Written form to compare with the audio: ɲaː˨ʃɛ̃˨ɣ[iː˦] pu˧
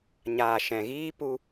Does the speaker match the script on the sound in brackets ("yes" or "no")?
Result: yes